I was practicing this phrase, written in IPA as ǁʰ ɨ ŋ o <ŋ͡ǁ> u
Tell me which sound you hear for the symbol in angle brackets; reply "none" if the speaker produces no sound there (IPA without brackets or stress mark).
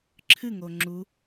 ŋ͡ǁ